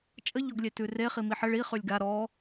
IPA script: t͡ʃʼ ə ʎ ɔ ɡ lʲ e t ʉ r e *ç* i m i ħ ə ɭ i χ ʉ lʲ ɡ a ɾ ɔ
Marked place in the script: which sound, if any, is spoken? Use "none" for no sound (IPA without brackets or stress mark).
χ